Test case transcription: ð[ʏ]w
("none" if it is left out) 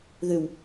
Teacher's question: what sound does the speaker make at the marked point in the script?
ʏ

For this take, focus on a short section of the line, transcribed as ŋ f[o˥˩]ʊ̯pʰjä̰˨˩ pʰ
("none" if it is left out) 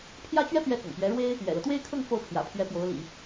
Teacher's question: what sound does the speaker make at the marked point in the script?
o˥˩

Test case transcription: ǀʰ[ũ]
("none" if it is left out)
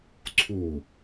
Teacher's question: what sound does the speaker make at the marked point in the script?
u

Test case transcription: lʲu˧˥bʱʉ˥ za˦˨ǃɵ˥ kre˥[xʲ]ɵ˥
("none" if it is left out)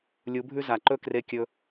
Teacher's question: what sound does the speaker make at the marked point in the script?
kʲ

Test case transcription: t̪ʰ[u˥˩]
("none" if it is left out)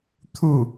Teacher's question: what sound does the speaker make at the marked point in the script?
u˥˩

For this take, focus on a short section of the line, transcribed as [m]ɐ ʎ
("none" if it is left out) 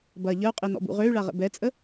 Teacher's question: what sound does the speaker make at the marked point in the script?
b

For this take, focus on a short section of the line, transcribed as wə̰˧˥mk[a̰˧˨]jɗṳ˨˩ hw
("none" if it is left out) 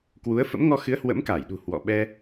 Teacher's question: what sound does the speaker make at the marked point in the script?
a˧˩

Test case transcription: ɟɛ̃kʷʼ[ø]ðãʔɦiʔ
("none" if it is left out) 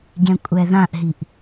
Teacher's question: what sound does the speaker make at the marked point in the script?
ɛ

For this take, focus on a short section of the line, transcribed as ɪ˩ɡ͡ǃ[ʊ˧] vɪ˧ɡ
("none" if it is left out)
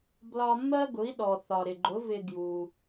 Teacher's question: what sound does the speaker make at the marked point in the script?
ʊ˩˥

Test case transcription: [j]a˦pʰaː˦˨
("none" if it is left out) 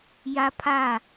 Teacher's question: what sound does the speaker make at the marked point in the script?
j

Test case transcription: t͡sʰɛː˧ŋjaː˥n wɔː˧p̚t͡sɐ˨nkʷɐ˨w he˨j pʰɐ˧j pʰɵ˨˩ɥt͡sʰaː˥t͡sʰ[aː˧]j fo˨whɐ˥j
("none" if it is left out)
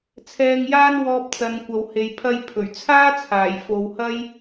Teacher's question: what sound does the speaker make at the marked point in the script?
aː˨˩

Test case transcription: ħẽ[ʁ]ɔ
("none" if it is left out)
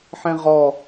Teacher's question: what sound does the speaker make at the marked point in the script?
ʁ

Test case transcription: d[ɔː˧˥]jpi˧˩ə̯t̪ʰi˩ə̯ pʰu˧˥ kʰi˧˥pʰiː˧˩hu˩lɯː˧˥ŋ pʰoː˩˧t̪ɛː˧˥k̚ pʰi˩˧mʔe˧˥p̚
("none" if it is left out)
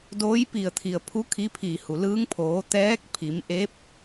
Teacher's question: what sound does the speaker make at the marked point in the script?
oː˧˥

